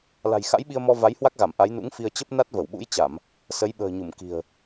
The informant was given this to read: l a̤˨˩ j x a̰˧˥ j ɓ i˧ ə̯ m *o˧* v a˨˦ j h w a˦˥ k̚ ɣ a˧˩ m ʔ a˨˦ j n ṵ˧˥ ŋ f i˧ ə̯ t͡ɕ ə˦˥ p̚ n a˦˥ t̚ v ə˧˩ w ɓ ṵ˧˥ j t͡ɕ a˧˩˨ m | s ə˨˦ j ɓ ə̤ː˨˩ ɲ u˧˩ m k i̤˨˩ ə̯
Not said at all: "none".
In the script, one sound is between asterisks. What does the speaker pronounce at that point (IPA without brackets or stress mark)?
ɔ˧